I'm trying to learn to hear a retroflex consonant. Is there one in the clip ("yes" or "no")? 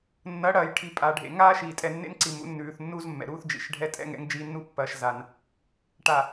yes